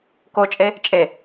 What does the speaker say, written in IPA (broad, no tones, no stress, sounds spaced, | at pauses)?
k o t͡ʃʼ e | t͡ʃʼ e